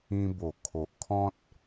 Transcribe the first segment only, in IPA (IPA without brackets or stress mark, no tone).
ĩ